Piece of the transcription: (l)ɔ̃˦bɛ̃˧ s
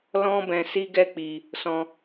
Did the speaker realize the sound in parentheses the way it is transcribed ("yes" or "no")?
yes